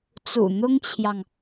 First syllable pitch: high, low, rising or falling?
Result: low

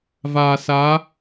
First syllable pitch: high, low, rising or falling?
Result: low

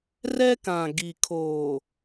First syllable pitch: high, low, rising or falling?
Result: high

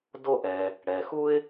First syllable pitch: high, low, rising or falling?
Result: high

